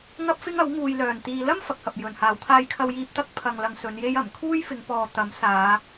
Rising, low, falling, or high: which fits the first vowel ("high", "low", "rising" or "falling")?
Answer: high